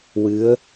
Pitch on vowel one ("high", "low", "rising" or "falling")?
rising